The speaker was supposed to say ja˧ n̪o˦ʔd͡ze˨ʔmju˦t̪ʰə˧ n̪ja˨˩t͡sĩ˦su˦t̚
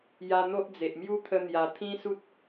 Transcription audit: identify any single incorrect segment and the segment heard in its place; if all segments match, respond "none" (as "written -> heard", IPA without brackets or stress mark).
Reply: t͡s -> t̪ʰ